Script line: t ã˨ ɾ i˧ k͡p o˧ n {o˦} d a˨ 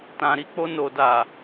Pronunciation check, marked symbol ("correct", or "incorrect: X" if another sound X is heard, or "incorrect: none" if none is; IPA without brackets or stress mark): incorrect: o˨